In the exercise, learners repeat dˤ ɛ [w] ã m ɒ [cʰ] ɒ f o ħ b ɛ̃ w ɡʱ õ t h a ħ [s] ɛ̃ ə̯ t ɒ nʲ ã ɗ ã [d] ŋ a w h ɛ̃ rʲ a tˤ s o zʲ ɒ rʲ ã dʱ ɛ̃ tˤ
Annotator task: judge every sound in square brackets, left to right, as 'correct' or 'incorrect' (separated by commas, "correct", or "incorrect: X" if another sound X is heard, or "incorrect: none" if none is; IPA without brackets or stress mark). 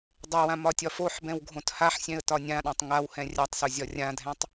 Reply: correct, incorrect: tʲ, incorrect: sʲ, incorrect: tˤ